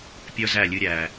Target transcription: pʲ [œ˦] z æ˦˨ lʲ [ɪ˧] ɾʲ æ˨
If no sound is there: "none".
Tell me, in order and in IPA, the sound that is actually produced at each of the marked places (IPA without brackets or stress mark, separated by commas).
œ˦, ɨ˧